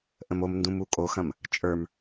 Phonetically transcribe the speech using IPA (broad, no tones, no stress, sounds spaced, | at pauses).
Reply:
ʔ ə̃ m o m n d ũ m u kʼ o x ɐ̃ m | t͡ʃʼ ə˞ m